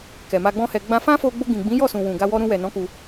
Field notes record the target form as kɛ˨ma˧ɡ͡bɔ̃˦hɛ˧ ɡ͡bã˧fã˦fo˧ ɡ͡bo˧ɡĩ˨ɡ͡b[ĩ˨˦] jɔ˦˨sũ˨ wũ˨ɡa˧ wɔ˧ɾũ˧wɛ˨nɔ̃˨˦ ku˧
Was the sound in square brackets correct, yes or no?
yes